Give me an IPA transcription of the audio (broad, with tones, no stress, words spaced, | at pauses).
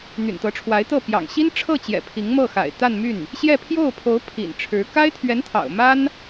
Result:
n̪y̰˨˩nt̪ɤ˧˥ʈ͡ʂʰwa˧˥ɪ̯t̪ɤ˥˩ pjɑ̰˨˩ŋ ɕi˥n ʈ͡ʂʰɤ˥˩t͡ɕjɛ̰˨˩ pʰi˧˥ŋmɤ˥˩xa̰˨˩ɪ̯ t̪a˥˧nmy˥˩n | ɕjɛ˥˧pʰjo˥˩ʊ̯pʰo˧˥ʊ̯ pʰḭ˨˩n ʈ͡ʂʰɻ̩˧˥ ka˥ɪ̯t̪ʰɥɛ˧˥nt̪ʰɑ̰˨˩ʊ̯ ma˥n